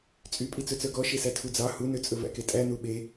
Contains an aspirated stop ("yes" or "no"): yes